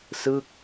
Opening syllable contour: falling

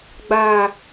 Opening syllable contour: low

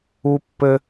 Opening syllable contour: high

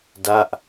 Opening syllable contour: falling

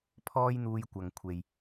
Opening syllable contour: high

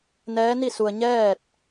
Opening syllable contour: rising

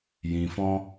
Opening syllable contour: low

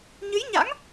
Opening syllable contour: rising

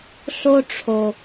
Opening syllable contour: high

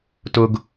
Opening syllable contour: high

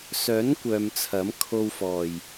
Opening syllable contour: rising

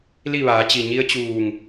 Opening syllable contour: falling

